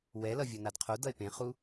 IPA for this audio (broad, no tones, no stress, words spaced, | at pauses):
wɛlʌ vʲʌnadqʰodʌe̯ pẽχu